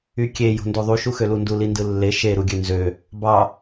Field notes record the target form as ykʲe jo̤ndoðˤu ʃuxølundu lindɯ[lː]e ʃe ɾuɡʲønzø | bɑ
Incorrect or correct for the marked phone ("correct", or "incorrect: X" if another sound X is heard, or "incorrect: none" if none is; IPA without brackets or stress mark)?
correct